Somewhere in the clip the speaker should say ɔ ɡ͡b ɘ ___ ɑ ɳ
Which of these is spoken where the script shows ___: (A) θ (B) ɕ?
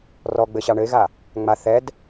B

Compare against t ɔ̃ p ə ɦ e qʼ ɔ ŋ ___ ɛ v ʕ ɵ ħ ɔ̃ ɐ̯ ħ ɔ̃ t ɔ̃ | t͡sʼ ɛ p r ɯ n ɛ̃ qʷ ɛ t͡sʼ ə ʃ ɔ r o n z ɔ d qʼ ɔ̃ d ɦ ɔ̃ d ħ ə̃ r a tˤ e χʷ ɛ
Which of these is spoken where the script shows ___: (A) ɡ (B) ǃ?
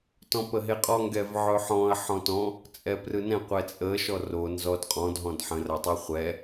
A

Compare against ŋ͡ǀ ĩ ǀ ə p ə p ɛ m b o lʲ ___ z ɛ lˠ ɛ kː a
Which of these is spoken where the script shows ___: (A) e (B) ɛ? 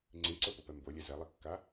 B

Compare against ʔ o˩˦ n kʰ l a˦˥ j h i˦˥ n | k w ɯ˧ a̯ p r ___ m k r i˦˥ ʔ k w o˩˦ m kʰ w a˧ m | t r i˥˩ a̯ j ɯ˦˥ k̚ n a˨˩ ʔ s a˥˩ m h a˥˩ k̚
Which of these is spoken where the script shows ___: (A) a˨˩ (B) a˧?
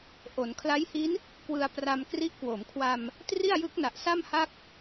B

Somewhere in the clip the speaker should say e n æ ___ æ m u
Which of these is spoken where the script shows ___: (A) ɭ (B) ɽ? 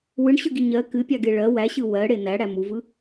B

